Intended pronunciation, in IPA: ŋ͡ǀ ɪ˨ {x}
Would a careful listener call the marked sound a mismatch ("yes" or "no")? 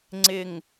yes